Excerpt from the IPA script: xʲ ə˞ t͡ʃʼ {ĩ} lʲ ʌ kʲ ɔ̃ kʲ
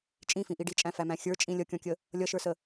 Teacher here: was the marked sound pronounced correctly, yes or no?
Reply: yes